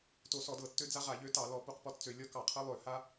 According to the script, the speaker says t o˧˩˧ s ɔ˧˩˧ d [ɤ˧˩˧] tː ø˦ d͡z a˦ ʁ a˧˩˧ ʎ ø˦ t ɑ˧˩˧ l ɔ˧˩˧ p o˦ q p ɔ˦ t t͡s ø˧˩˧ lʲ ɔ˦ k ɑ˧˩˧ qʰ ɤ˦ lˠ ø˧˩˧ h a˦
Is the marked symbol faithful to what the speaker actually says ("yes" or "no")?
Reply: yes